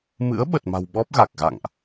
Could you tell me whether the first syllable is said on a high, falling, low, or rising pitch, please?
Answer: rising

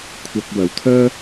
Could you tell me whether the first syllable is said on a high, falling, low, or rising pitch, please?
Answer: low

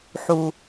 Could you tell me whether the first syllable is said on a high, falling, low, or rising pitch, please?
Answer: low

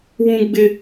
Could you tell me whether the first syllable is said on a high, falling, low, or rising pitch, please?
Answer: high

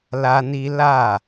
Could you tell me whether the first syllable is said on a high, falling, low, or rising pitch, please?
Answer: high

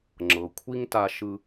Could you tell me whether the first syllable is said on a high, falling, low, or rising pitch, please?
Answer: low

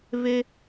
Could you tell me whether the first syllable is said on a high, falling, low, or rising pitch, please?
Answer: high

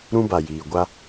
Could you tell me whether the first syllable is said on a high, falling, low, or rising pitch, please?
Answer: high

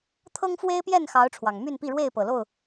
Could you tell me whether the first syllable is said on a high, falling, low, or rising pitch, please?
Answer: high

